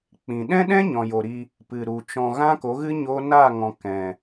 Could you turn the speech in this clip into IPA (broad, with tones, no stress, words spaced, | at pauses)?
k͡pĩ˨ ɗɛ̃˦ɗɛ̃˦ ɲɔ̃˨jo˨ɾi˧ | pɨ˨ɾu˨t͡ʃɔ̃˧ ɣã˦ko˨˦ɣɨ˦ ɲo˦ naː˦˨ŋɔ̃˨ kɛ̃˨